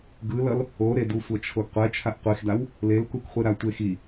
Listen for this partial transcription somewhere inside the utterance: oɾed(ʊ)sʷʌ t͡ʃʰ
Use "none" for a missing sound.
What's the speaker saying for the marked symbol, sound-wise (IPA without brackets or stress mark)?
u